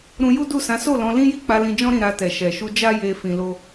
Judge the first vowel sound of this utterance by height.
high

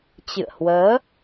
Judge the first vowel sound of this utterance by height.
high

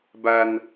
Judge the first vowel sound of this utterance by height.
low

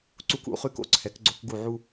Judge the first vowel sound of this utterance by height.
high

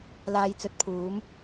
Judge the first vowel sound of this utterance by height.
low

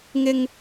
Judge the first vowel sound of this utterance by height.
high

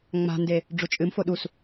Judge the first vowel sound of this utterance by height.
low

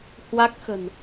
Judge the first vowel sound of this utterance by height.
low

